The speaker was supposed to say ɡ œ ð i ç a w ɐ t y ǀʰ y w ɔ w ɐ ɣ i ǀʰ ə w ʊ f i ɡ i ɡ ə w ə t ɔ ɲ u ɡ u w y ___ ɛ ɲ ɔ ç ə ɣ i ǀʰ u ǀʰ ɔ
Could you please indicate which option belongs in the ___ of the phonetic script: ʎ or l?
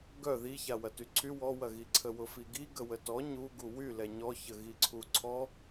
l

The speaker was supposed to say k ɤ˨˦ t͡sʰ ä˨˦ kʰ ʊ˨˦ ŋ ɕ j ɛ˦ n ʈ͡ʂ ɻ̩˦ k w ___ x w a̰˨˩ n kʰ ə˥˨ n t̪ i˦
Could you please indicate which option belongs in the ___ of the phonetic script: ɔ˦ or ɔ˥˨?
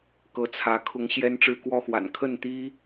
ɔ˦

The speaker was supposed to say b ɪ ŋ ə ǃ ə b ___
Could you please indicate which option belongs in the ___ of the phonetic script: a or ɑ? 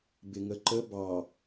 ɑ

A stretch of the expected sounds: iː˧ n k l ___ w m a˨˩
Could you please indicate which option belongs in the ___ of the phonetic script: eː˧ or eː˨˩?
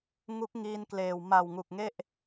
eː˨˩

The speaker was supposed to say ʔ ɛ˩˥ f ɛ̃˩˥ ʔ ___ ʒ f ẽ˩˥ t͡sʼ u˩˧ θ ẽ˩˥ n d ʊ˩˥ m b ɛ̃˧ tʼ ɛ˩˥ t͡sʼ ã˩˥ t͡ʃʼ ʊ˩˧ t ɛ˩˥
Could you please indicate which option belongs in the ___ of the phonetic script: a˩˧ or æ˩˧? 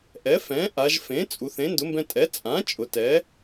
a˩˧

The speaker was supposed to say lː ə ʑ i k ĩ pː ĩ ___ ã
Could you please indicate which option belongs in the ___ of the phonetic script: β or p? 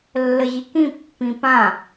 p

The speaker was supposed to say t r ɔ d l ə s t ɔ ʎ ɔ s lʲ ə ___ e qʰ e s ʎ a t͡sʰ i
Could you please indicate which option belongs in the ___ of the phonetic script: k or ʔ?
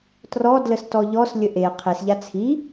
ʔ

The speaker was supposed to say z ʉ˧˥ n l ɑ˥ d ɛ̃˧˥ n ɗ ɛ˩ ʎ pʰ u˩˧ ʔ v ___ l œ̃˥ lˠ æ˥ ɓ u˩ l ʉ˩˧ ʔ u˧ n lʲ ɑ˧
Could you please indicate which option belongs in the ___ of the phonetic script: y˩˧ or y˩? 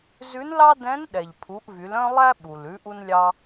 y˩˧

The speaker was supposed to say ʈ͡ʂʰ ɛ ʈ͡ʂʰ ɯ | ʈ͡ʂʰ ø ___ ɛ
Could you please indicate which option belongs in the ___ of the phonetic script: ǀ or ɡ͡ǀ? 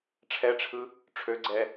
ɡ͡ǀ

